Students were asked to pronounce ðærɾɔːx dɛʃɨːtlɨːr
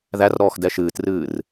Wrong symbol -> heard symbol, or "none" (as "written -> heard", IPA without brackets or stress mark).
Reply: l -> r